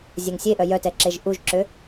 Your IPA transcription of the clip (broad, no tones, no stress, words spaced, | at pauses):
zʲɛŋsʲeʔœ jœtɛ ǁeʒʔuʒǁø